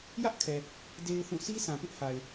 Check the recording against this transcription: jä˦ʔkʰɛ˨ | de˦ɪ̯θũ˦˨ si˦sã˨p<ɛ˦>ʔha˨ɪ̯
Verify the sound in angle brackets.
incorrect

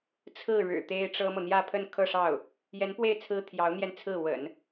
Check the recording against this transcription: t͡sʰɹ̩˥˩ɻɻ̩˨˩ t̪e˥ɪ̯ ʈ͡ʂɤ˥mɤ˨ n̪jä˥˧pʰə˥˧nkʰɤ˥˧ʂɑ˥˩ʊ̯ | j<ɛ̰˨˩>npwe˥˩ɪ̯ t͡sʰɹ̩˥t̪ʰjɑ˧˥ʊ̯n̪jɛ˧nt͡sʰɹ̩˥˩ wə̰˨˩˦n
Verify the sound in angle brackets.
incorrect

